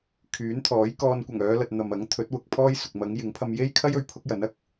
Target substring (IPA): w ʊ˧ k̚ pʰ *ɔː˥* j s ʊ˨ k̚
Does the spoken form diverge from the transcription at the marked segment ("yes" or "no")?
no